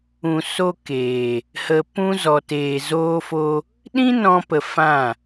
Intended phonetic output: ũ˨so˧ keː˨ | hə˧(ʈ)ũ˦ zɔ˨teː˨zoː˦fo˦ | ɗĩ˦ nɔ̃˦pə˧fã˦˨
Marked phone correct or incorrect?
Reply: incorrect